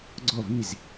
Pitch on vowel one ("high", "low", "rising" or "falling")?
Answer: falling